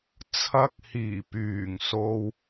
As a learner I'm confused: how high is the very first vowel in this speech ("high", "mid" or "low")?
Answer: low